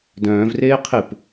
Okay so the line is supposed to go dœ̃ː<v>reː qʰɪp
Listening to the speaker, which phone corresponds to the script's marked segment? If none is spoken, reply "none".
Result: v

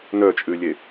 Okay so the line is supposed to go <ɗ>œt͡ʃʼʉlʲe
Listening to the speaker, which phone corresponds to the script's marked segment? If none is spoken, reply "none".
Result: n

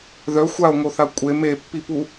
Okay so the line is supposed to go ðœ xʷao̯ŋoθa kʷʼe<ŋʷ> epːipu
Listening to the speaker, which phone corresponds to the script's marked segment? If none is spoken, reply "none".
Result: m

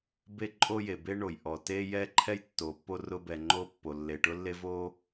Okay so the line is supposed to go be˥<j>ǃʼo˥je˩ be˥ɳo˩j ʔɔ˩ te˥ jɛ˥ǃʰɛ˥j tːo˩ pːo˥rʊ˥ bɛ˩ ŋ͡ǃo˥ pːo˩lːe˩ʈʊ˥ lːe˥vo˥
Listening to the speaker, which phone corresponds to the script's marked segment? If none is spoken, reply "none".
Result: none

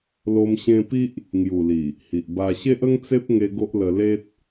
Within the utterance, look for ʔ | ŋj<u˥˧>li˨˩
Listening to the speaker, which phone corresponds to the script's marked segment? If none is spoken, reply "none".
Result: u˨˩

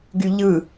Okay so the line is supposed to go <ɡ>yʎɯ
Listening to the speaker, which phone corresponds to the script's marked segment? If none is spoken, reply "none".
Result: ɡ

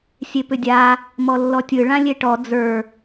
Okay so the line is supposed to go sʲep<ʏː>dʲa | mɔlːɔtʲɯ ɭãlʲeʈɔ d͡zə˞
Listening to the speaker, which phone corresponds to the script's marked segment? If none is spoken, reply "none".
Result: ʏ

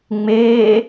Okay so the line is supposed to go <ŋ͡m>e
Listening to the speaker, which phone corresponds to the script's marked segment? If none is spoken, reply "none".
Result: ŋ͡m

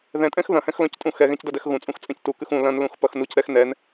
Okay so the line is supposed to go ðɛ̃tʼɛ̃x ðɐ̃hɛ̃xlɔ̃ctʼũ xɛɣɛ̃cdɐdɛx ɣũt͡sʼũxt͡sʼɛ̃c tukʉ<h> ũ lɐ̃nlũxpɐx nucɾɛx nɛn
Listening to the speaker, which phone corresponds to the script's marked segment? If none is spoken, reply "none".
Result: x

